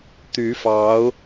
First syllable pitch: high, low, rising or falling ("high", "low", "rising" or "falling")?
rising